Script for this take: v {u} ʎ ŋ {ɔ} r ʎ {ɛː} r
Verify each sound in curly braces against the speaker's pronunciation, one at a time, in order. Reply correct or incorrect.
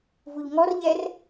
correct, correct, incorrect

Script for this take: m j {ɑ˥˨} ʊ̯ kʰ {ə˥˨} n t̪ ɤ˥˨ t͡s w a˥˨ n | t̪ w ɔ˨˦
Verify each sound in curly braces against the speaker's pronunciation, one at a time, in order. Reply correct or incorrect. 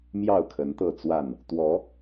correct, incorrect

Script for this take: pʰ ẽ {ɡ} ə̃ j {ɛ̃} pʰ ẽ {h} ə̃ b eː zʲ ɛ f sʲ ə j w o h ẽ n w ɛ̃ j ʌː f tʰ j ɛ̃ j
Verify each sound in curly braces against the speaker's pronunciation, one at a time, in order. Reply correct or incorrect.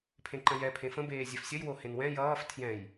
incorrect, incorrect, incorrect

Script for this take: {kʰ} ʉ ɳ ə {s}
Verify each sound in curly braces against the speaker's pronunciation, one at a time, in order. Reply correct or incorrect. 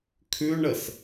correct, correct

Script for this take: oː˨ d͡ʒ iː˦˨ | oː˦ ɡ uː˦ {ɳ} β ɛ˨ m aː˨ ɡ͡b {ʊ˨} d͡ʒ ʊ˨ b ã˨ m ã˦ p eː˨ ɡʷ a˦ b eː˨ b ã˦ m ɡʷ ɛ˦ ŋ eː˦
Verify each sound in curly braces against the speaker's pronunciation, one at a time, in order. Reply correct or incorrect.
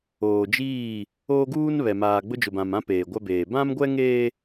incorrect, incorrect

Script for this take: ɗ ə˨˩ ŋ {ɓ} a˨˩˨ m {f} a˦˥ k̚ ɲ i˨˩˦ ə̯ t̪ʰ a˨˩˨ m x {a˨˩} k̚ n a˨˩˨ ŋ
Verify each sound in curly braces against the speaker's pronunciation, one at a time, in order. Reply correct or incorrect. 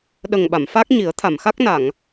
correct, correct, incorrect

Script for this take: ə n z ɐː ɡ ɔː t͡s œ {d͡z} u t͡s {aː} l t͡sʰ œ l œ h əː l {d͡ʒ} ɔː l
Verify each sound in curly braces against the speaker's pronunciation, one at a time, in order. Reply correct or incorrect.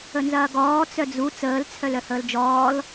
correct, incorrect, correct

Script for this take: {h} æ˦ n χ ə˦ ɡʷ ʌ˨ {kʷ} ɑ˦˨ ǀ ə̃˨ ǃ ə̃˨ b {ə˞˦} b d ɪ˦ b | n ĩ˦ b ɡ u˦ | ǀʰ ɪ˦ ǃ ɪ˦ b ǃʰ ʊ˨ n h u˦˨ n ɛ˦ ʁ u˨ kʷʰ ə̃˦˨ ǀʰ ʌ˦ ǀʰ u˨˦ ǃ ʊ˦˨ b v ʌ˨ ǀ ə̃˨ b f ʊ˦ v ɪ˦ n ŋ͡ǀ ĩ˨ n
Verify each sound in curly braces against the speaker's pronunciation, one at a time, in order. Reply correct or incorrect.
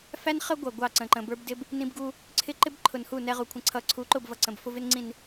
incorrect, incorrect, correct

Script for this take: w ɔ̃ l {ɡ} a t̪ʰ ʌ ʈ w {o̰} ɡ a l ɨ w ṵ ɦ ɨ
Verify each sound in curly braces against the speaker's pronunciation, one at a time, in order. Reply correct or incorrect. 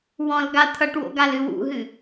correct, correct

